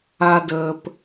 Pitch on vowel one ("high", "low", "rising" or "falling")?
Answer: low